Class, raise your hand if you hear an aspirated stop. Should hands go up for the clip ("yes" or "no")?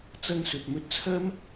yes